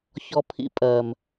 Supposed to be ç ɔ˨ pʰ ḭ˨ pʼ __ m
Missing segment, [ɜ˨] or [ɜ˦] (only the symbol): ɜ˨